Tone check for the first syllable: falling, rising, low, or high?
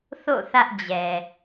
falling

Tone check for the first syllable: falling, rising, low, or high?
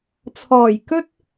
low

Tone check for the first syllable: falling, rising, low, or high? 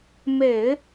low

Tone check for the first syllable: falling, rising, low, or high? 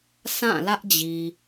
falling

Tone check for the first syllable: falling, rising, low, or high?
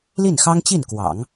falling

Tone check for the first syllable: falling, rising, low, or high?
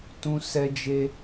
high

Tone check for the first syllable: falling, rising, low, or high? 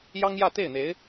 high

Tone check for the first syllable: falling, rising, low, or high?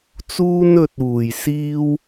high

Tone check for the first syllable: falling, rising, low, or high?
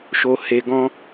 low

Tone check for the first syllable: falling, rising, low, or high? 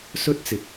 high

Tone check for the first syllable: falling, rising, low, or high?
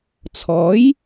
rising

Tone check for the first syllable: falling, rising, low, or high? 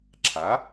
rising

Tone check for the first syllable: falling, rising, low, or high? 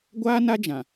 high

